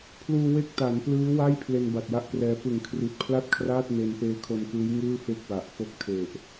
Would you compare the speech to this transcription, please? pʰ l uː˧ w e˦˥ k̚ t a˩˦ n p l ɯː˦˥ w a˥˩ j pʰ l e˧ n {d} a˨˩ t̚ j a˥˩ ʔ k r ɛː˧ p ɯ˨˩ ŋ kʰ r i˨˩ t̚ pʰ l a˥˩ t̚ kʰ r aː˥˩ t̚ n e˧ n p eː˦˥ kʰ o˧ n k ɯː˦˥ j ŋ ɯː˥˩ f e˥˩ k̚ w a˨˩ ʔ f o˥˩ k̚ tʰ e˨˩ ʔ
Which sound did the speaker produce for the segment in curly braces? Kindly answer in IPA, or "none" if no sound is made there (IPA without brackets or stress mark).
b